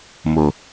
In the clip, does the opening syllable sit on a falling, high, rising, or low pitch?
low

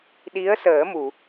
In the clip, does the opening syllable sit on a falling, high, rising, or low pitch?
rising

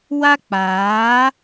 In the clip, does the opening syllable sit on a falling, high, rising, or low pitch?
high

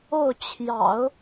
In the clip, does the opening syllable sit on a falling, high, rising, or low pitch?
falling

